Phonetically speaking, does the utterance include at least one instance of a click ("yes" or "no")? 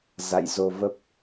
no